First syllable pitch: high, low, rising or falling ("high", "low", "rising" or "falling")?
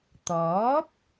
rising